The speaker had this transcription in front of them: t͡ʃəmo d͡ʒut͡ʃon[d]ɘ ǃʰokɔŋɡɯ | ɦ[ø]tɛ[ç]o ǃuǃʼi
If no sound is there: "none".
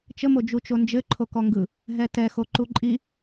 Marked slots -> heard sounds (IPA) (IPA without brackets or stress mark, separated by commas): d͡ʒ, ɛ, x